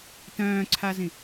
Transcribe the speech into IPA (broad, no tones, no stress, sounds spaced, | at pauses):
t œ̃ː ǀʰ a z ĩ